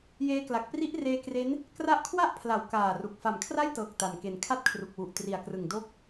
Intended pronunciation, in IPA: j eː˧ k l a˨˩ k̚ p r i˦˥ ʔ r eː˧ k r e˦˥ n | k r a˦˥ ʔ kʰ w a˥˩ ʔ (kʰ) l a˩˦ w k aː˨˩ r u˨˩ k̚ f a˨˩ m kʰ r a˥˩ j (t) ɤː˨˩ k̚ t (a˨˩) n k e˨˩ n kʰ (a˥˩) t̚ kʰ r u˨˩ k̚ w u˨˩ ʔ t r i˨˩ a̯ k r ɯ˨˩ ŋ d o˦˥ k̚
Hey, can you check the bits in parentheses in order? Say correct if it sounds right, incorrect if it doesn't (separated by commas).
incorrect, correct, correct, correct